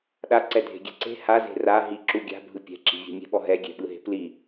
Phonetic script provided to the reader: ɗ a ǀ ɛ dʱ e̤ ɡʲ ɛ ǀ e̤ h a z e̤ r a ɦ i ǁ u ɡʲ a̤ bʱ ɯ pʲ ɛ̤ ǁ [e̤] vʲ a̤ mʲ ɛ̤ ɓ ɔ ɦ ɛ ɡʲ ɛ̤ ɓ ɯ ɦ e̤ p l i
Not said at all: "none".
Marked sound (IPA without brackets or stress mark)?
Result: i̤